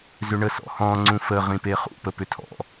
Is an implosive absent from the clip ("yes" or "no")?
yes